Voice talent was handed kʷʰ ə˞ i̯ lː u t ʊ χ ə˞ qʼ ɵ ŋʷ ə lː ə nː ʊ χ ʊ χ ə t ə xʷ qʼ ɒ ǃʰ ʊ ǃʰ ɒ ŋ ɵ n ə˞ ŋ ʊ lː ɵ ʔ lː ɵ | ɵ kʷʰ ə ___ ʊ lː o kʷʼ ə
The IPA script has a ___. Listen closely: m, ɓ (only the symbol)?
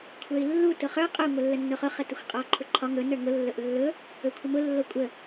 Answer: m